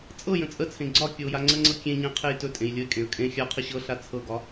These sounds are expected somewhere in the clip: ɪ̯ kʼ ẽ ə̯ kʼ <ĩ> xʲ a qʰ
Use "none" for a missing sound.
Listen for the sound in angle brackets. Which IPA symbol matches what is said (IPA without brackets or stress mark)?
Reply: ẽ